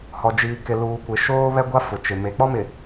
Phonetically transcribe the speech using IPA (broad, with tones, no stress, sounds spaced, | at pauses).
h ɔ˨ d͡ʒ iː˨ k ɪ˨ l uː˨ kʷ ɪ˨ ʃ oː˦ β ɛ˦ ɡʷ a˦ f ʊ˨ t͡ʃ ɪ˨ m e˨ k͡p ɔ˦ m ɪ˨